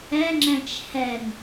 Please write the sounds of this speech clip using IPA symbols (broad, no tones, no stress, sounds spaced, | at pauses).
ɛ ŋ͡ǁ ɛ̃ t͡ʃ h ɛ ŋ